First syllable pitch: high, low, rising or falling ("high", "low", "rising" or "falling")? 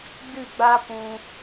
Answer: falling